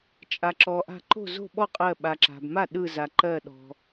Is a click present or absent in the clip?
present